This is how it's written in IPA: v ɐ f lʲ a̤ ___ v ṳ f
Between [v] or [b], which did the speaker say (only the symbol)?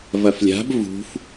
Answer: b